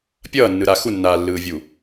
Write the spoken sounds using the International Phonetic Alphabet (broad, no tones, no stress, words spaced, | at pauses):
pʲʌːnːɯɾa xunːaːlːɯːvʲu